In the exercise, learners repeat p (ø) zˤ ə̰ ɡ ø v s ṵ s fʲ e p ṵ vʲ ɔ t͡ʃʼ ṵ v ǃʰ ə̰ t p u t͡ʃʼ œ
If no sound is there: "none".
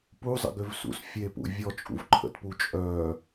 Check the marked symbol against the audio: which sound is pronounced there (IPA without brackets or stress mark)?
u